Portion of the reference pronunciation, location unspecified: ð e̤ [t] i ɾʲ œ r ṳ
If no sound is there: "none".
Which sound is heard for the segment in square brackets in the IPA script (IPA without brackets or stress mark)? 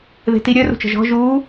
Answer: t